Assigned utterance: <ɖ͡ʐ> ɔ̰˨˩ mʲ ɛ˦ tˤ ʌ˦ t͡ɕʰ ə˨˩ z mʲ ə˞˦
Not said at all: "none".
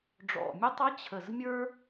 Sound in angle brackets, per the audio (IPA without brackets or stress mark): ɖ͡ʐ